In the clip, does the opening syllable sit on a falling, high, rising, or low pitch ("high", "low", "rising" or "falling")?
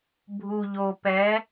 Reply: low